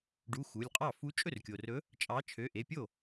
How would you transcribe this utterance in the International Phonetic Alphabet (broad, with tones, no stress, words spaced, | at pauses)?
ɖu˩˧˩ xu˩˧˩lʲqʼɑ˥˩ fu˨˥t͡ʃʼɵ˥˩rkʲo˩rɵ˨˥ | t͡ʃʼɑ˨˥t͡ʃʰø˩˧˩ ʔe˩˧˩pʲo˥˩